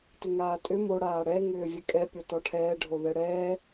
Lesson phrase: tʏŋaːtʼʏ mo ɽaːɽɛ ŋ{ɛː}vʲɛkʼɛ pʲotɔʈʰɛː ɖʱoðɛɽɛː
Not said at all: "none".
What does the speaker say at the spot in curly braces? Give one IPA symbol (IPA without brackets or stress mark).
ʏː